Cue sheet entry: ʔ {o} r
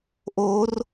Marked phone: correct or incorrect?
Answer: correct